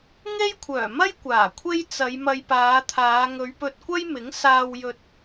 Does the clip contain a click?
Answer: no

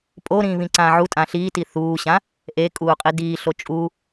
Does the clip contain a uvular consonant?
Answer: yes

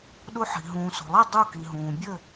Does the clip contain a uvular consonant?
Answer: no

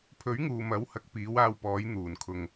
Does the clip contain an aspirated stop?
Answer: yes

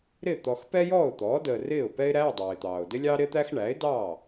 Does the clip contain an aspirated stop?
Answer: no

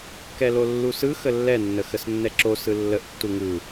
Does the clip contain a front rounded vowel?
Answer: no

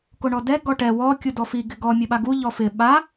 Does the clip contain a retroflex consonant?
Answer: yes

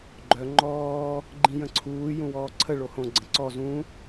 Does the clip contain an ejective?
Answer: no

